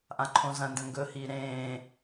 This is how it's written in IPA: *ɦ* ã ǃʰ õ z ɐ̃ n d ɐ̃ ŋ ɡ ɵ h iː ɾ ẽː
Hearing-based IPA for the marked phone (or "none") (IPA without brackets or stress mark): ʔ